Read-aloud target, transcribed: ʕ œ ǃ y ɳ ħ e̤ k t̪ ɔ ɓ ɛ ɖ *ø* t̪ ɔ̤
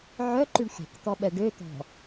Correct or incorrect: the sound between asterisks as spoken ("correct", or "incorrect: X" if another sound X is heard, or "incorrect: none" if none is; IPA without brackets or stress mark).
correct